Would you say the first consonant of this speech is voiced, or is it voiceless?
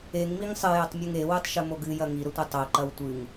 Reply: voiced